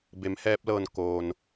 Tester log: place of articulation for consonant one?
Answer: labial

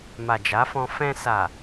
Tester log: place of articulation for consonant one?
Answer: labial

